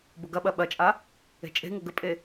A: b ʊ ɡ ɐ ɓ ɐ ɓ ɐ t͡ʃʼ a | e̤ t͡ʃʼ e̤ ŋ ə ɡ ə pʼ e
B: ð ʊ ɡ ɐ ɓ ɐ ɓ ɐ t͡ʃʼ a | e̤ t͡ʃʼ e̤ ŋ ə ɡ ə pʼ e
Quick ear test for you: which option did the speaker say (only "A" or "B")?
A